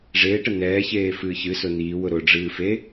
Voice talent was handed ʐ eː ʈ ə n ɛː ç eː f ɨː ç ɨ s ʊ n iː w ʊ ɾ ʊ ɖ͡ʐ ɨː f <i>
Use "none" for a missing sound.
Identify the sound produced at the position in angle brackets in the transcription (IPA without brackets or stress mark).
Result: e